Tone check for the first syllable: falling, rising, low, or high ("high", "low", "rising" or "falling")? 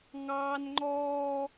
high